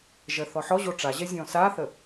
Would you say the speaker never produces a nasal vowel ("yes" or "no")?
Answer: no